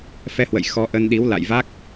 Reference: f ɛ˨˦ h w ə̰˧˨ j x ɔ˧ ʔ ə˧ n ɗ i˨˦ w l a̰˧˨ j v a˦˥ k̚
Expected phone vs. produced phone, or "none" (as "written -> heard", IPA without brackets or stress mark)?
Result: none